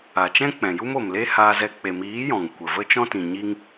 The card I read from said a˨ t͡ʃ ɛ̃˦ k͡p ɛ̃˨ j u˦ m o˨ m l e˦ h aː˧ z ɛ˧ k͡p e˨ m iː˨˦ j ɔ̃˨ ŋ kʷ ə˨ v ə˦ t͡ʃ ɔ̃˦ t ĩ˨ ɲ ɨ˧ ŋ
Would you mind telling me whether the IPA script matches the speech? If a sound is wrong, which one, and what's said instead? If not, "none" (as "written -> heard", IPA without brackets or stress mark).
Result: ɨ˧ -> i˧